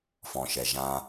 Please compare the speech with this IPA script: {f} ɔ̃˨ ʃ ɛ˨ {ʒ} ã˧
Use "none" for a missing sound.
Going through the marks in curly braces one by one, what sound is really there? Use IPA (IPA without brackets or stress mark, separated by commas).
f, ʒ